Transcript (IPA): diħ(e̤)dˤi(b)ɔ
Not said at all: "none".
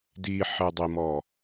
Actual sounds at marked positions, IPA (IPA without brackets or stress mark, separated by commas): e, m